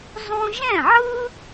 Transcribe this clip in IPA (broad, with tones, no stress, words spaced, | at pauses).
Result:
zˤũ˥ ʒɛ̃˥˩ʕɯ˥